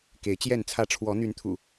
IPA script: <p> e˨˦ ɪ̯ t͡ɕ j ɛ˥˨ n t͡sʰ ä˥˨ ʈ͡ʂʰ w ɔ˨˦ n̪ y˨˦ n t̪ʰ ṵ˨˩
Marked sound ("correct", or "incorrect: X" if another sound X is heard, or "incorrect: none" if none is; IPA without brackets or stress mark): incorrect: k